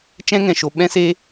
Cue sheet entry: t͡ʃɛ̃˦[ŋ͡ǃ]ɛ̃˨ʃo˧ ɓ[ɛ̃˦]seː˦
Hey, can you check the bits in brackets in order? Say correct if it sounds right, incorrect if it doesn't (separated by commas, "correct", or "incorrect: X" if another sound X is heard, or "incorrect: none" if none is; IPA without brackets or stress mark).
incorrect: ŋ, correct